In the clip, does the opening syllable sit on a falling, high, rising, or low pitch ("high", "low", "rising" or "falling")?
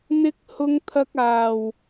high